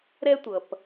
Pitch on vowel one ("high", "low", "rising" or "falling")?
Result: high